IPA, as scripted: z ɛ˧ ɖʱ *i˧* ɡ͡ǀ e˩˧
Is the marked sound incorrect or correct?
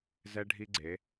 correct